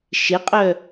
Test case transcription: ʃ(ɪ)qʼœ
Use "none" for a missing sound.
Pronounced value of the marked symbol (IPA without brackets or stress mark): ɪ